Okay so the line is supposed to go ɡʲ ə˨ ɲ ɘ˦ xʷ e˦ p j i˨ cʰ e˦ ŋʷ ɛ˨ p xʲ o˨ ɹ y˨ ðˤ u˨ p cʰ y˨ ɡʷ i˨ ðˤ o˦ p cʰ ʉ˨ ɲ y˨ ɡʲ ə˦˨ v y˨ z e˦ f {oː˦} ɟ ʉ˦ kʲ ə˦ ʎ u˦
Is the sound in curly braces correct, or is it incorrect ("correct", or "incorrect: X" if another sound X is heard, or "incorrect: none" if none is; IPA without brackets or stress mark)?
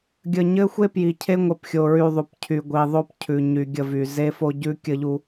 incorrect: o˦